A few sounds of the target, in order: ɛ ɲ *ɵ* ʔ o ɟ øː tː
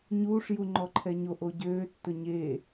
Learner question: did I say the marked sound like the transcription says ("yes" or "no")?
no